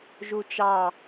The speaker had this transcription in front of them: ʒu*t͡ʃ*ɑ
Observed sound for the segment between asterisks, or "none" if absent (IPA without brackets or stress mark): t͡ʃ